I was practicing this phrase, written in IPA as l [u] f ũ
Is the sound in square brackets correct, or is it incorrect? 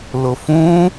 incorrect